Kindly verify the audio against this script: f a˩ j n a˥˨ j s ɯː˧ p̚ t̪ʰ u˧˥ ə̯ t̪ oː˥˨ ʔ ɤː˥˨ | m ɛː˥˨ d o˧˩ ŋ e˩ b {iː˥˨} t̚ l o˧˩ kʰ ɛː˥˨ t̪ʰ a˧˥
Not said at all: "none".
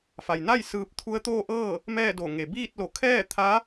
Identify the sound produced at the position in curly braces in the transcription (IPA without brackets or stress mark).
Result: iː˥˨